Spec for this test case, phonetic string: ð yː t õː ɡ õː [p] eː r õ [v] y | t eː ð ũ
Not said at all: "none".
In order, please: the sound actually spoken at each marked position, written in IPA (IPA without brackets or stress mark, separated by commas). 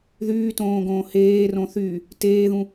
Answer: h, θ